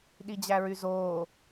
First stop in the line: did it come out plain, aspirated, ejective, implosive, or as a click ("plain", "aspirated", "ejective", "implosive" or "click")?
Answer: implosive